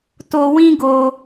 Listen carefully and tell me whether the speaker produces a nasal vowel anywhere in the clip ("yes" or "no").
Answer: yes